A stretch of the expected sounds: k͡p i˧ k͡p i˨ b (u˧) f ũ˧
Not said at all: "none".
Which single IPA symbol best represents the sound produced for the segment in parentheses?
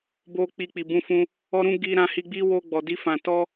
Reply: ũ˧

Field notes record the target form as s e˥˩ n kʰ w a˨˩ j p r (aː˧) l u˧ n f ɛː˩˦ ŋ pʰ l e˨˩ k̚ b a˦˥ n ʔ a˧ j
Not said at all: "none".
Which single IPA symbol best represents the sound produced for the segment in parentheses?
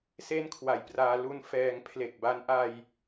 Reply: aː˧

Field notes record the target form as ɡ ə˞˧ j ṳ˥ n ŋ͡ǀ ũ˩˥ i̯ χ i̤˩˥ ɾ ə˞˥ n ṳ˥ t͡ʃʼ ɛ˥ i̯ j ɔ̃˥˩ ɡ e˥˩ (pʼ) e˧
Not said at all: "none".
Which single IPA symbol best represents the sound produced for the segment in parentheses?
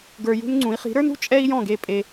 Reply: pʼ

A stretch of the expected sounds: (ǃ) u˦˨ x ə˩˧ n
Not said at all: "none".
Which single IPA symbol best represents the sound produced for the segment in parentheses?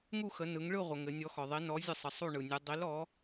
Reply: ŋ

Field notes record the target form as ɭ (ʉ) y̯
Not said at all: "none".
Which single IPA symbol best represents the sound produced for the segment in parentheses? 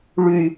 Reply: ʉ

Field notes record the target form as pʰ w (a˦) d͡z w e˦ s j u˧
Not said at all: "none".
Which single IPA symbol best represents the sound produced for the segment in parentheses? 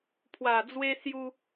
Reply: a˨˩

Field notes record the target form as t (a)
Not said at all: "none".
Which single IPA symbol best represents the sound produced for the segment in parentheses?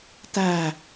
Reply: æ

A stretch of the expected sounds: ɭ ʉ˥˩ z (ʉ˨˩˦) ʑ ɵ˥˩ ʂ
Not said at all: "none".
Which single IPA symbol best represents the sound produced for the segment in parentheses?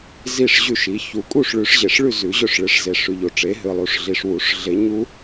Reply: ʉ˨˩˦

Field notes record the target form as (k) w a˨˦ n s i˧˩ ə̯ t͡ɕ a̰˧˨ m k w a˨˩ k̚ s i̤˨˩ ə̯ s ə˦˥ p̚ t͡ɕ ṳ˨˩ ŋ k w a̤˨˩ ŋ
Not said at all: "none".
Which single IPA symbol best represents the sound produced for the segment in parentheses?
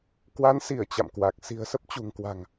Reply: k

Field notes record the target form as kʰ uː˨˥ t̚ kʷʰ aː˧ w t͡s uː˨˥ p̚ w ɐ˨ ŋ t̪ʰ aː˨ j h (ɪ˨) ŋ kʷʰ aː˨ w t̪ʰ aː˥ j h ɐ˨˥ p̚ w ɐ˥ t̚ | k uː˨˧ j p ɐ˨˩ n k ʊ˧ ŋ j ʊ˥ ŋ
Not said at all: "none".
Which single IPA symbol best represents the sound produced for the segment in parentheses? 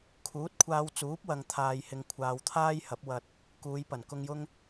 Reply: ɪ˨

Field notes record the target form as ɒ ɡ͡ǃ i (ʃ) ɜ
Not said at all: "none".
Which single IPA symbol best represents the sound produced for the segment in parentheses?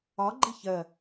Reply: ç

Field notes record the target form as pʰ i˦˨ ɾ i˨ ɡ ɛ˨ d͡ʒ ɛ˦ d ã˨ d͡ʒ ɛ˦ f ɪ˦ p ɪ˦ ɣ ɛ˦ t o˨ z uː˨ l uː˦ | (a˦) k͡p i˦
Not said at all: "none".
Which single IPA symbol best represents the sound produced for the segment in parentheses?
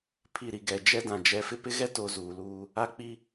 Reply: a˦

